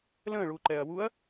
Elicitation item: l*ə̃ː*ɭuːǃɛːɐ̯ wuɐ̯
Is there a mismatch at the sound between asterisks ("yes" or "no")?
no